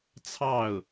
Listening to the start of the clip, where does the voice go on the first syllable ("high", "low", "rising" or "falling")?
falling